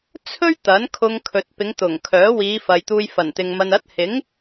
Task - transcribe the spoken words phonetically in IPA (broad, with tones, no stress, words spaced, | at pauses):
t͡sʰɵ˥ɥ t̪ɐ˨˥nkʰʊ˧ŋkʰɵ˨t̚ pɪ˨˧ŋt̪ʊ˨˩ŋ kʰœː˨˥wiː˨˧fɐ˨jt̪uː˧j fɐ˨˩nt̪ɪ˨ŋ mɐ˨nɐ˨˥t̚hɪ˨˥ŋ